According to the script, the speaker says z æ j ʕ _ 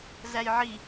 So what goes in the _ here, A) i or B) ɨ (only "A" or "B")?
A